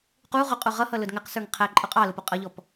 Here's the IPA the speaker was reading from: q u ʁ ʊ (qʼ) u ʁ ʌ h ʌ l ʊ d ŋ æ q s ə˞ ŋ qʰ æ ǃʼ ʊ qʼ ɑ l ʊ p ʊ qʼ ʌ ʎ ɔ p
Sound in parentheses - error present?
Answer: no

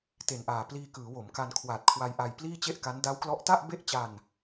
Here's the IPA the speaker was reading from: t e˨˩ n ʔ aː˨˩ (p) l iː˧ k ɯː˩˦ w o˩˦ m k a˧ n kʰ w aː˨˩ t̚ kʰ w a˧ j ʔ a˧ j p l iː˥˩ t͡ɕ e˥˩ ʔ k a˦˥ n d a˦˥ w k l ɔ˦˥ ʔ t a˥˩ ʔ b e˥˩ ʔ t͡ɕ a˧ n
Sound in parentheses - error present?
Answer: no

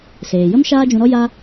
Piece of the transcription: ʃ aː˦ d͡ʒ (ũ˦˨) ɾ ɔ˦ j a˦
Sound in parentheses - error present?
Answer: yes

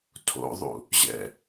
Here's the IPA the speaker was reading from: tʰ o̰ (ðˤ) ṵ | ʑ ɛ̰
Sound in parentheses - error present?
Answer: no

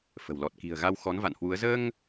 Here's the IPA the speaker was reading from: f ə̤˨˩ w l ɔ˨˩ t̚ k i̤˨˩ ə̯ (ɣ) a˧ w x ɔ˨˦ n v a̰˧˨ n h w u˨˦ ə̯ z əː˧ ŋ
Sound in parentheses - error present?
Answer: no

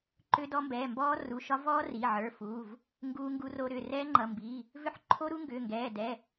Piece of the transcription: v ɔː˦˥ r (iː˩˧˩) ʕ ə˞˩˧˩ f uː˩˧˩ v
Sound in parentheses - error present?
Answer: yes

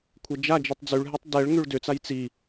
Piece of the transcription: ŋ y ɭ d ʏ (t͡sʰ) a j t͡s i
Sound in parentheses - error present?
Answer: yes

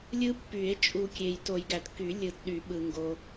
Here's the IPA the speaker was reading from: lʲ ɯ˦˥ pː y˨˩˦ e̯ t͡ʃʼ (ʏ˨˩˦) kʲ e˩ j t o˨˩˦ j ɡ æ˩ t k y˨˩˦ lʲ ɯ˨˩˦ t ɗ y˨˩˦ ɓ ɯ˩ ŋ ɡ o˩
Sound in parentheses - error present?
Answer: yes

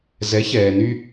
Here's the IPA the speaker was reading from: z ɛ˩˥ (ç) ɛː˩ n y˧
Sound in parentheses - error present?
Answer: no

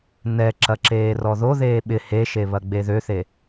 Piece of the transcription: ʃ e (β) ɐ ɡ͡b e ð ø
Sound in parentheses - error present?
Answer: no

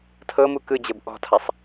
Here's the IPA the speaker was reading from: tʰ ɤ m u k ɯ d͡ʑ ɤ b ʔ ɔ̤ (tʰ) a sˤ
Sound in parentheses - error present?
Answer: no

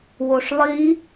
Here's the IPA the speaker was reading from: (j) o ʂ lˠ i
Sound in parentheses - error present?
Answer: yes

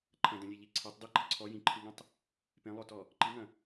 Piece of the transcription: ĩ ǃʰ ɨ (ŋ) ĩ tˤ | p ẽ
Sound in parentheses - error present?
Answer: no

